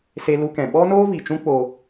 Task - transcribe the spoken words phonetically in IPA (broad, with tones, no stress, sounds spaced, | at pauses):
s e˧ l u˧ k ɛ̃˨ ɓ ɔ˦ n oː˦ v i˨ t͡ʃ ũ˦ k͡p o˦